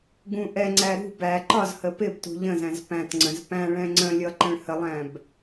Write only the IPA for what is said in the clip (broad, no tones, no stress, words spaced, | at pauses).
ɡũ ʔɛŋ͡ǀæ ɾṳ bæ ǃɒzhə pɪbtṳ ʎə̃zæ̃z pæ̃tŋ͡ǀə̃z pæ̃ɭɛ̃ ŋ͡ǀə̃lʲʌ ǃə̃ɭhəlˠæ̃b